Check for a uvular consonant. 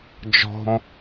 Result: absent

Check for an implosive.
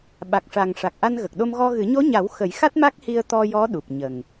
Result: present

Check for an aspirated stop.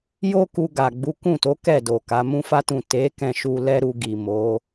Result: absent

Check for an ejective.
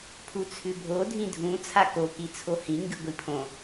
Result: absent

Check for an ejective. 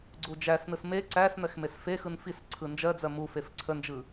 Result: absent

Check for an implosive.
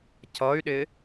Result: present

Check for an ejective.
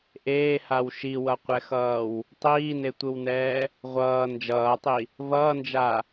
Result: absent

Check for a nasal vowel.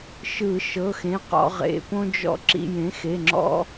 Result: present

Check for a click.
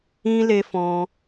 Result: absent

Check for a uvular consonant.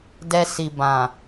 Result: absent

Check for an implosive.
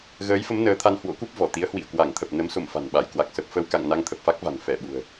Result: present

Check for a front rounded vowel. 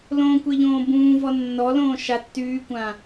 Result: present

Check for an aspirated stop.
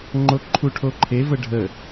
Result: present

